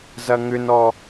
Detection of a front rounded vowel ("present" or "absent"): present